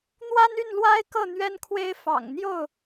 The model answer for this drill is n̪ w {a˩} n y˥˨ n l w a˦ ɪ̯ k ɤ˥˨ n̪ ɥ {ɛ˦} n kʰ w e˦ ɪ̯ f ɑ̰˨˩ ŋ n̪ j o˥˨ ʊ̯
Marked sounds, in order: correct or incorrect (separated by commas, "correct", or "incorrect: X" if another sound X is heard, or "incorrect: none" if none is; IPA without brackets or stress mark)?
incorrect: a˦, correct